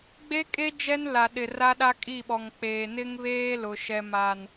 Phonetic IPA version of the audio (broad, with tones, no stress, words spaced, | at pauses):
ɡ͡be˦kʼe˦ d͡ʒɛ˦nla˨ ɗɪ˨ ra˦ɗa˦kʼi˦˨ɓɔ˨ŋ k͡peː˨ nɪ˦ŋβeː˦lʊ˨ ʃɛ˨ma˨n